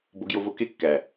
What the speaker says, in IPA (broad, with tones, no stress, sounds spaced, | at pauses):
b o˧ ɡ j o˧ v o˧ k e˦ kː æ˨